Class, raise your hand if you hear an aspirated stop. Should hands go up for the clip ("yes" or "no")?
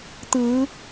no